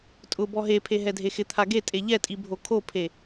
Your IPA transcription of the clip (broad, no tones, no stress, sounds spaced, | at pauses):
tʼ ʊ b ɔ ɦ e pʰ e ɦ ɛ dʱ e x ɪ t̪ʰ a ɡ e tʼ e ʎ ɛ tʼ i bʱ o kʰ o pʰ e